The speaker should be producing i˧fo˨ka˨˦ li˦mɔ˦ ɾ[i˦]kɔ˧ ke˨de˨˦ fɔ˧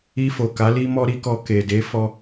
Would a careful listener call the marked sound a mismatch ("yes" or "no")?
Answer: no